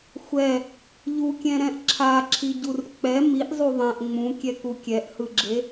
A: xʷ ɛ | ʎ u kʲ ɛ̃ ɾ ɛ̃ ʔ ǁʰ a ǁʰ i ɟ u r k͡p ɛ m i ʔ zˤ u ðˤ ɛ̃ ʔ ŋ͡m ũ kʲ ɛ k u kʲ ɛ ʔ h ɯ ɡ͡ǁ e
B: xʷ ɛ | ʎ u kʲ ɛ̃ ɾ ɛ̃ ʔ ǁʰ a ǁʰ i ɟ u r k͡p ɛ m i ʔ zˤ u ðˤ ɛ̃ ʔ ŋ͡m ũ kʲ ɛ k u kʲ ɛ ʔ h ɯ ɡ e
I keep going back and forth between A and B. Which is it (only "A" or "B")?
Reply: A